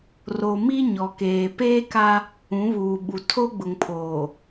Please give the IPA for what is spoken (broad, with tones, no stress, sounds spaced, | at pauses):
r o˨ m i˦ ɲ ɔ˨ k eː˨ p eː˦ k a˦ | ũ˨˦ β uː˨ ɓ u˨ tʰ o˦ ɡ͡b ʊ˨ ŋ pʰ oː˨